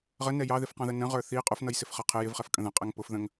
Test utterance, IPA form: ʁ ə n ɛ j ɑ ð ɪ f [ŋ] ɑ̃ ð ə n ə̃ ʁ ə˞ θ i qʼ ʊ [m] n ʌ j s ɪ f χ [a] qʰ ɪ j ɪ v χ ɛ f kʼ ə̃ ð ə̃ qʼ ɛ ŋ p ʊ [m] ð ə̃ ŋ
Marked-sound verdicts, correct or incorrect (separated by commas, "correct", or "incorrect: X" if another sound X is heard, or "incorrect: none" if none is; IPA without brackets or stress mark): incorrect: q, incorrect: f, incorrect: ʌ, incorrect: f